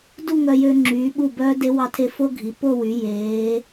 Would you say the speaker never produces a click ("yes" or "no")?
no